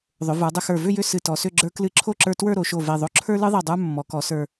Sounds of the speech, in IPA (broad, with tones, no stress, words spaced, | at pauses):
ðˤʏ˩˧ və˞˩˧dˤʏ˧xə˞˧˩ vʏ˥˧jʏ˥˧ sɨ˧˩tɔ˩˧sʏ˥˧ ɡ͡ǁə˞˧klɨ˧ ǁʰo˥˧ǁə˞˧twə˞˥˧ ɾo˩˧ʃo˧˩ve˧˩ ðˤo˧ǁʰə˞˥lɨ˥ðˤe˧˩ dˤə˞˥mːɔ˩˧kɔ˩˧ sə˞˧˩